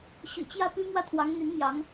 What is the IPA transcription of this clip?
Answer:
ɕy̰˨˩t͡ɕjä˥˩ py˥mwä˥˩t̪ʰwɑ˧˥ŋ n̪y˧˥n mjɑ˧˥ŋ

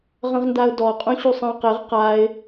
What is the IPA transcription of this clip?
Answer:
ʁə̃ʁndaʊ̯dɔ qʼũɕusˤə̃ʊ̯qɪʁ qaɪ̯

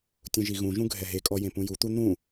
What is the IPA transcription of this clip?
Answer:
tʲũʒiɣũʒũ ɡʱɛɦekʼɔ jẽpũjut̪u n̪ũ

